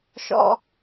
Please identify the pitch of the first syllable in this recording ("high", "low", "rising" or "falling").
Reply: high